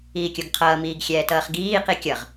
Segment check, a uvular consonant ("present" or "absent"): present